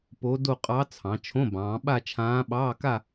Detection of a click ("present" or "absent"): absent